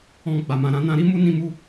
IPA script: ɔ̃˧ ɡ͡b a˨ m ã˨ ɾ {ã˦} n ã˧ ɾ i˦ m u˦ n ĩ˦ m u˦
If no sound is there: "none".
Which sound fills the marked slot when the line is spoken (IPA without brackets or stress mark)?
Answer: ã˨˦